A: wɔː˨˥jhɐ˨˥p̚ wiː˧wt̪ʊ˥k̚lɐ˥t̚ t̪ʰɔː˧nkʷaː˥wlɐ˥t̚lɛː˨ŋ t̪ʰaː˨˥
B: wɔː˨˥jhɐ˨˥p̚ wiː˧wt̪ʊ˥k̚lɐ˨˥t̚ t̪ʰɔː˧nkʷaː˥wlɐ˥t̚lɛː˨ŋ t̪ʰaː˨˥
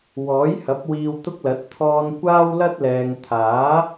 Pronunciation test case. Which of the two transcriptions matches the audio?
B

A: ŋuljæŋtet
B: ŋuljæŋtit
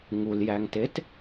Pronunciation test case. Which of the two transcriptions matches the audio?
A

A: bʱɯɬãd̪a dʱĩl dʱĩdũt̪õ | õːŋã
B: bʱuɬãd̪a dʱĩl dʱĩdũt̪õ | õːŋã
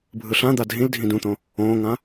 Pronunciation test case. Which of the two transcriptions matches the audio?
A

